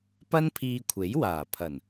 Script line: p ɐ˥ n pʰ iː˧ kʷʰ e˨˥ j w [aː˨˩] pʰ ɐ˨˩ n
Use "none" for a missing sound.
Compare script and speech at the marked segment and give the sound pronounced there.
aː˨˩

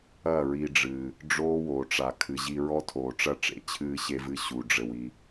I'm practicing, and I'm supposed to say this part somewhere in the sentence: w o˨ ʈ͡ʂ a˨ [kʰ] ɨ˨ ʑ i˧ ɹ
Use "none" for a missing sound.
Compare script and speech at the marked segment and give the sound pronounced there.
kʰ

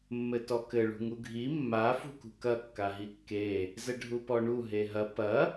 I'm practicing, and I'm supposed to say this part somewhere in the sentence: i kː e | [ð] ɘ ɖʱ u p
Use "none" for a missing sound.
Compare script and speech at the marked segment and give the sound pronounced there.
z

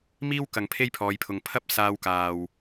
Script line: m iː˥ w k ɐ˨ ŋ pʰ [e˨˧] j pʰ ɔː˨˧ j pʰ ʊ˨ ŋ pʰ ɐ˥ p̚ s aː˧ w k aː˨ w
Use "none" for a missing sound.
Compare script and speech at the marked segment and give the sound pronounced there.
e˥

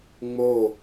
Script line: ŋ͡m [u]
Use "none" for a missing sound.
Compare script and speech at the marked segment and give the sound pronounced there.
o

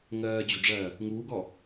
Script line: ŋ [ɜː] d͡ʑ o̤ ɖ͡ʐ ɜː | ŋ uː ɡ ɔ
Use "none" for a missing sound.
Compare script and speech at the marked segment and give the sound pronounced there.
ɜː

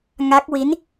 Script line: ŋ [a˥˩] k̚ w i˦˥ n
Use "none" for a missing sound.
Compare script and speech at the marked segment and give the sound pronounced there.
a˦˥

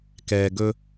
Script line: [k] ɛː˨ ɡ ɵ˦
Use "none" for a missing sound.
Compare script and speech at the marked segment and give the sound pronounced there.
k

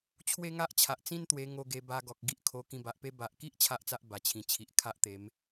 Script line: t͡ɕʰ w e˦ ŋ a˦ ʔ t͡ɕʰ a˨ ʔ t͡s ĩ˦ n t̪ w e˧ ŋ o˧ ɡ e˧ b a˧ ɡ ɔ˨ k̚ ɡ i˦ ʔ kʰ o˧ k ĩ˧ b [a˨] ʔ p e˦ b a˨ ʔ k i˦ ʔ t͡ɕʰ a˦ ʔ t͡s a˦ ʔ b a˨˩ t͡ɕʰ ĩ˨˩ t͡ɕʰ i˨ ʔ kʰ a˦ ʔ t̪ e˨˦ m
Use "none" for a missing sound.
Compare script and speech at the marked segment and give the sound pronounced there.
a˨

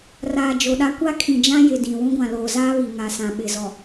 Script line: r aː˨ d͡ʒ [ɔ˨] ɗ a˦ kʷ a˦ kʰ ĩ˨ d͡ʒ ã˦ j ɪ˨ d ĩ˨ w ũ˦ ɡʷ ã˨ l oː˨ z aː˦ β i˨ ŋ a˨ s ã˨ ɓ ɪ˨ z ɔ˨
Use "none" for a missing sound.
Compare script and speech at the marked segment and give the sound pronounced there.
o˨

